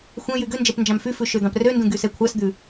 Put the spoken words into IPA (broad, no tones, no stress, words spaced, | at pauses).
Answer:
xʷɛ̃ jyɡønd͡ʒɛp nd͡ʒɑ̃mfyfʉ ʃød̪ɑ̃prøndũ ɡysɛkʷʰɑsd̪ʉ